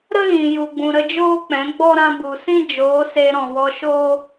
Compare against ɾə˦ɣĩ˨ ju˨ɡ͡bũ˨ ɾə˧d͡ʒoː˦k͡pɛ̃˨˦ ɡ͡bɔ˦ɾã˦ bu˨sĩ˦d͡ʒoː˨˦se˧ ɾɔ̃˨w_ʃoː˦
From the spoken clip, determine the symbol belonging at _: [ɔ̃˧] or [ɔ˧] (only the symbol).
ɔ˧